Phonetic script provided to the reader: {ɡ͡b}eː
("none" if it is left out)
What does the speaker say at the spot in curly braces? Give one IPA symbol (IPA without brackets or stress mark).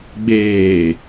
ɡ͡b